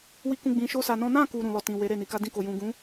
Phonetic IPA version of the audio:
wi˧kũ˧ ɡ͡bĩ˧ʃo˦ sa˧nɔ̃˦ nã˦˨ku˨ ɾũ˨lɔ˨ tĩ˨ we˨˦ɾe˦˨ni˨˦ ka˧dĩ˧ko˨ jũ˨ ɡũ˨˦

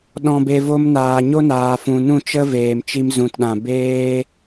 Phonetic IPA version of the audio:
ɗɔ̃˧be˧vo˦m naː˨ɲo˦naː˨fũ˨ nũ˦˨t͡ʃə˦ veː˨mt͡ʃi˧m zũ˨tɗã˨ beː˧

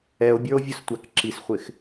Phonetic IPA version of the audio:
ɛo̯bʲə˞o̯vʲʊstʷæk ǁisχʷɪx

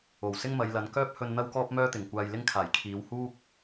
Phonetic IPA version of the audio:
o˨˩wsɪ˥ŋ mɐ˨˧jlɐ˨˧n kœː˥p̚hɵ˧n n̪ɐ˥wkɔː˥p̚mœː˥t̪ɪ˨˩ŋ kʷaː˧jlɪ˥ŋkʰaː˨˩j kʰiː˨˧whuː˥k̚

